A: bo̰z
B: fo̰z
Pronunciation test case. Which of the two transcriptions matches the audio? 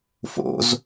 B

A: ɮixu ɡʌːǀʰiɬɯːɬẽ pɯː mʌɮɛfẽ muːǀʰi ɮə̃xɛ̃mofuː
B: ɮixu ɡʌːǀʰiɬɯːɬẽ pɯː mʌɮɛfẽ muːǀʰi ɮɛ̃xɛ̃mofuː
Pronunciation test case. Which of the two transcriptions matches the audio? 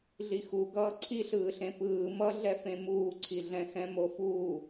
B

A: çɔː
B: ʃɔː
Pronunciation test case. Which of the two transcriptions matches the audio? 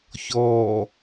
A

